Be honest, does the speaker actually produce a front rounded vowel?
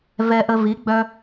yes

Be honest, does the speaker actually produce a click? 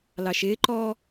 yes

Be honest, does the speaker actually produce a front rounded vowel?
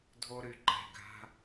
yes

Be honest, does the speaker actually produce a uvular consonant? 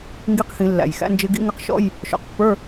yes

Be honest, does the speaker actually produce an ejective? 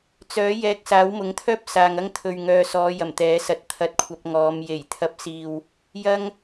no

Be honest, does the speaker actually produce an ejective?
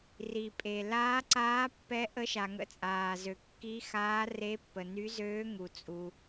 yes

